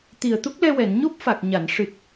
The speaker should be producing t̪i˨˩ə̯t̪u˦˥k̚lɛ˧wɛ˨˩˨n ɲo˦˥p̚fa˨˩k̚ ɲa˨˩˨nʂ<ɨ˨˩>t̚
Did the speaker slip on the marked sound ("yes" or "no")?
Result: no